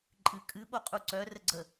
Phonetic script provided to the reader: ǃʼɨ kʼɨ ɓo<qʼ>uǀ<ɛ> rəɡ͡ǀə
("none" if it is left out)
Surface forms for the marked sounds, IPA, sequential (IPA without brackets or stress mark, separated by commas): qʼ, œ